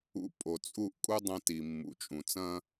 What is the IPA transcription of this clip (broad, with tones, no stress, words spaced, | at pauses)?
ṵ˧pʼo˩ t͡sʼu˥˩ʔkʼu˥ dˤɐ̃˥ ti˩mːṵ˩t͡ʃʼũ˩ t͡sɐ̃˥